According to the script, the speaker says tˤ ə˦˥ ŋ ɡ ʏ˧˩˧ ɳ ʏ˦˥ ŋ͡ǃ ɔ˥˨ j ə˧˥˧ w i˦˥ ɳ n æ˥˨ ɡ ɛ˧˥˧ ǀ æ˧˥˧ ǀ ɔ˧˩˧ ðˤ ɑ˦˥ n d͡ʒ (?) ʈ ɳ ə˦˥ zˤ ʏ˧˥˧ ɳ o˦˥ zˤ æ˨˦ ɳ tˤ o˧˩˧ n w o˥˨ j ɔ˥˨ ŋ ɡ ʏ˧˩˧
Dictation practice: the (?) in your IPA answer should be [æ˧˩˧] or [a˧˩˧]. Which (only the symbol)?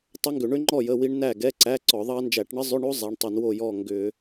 æ˧˩˧